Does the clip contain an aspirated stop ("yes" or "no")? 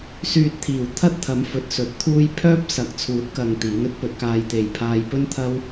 yes